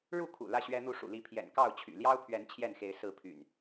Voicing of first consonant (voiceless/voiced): voiced